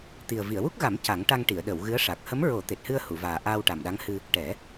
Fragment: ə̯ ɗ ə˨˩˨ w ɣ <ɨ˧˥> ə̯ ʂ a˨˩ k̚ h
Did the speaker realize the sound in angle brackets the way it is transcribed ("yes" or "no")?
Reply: yes